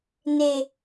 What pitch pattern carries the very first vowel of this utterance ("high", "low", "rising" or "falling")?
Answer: low